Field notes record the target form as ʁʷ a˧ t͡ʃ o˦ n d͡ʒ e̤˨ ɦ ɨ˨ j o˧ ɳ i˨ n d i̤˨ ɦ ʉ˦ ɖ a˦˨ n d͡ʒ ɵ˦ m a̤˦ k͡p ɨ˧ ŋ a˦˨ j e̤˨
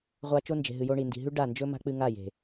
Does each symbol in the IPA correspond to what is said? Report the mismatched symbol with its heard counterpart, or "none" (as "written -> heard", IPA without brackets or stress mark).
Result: none